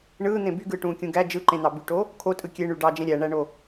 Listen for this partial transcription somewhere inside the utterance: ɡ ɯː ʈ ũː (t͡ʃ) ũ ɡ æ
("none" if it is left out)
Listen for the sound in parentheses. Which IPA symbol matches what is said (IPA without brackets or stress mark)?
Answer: kʲ